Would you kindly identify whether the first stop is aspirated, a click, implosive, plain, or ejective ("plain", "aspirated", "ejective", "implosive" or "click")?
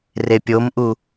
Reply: plain